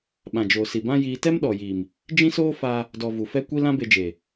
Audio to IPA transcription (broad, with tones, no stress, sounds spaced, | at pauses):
ɓ ã˨ d͡ʒ oː˨ s i˨ b ã˦ j iː˦ t ɛ˦ m ɗ ɔ˨ j iː˨ m | d͡ʒ ĩ˦ s oː˦ f aː˧ | d ɔ˧ v u˨ f ɛ˦ kʷ i˦ l ã˦ b e˧ d͡ʒ eː˨